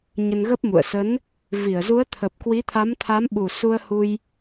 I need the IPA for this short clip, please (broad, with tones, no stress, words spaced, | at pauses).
ɲə˧nɣə˦˥p̚mṵ˧˨ə̯ sə˨˦n | vi˧˩ə̯zu˨˦ə̯t̪ʰə˨˩p̚ kwi˨˦t̪ʰa˨˦mt̪ʰa˨˦m ɓu˨˩su˧ə̯hu˧j